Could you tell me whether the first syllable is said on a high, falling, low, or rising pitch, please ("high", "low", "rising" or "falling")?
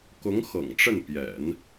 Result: rising